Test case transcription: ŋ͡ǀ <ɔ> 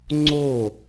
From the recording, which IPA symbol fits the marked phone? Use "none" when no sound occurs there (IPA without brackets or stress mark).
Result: o